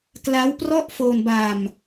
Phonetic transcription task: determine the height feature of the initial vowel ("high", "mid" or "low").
low